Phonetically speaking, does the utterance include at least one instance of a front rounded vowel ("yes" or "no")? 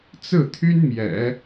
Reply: yes